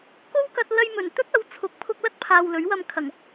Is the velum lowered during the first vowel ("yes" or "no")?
no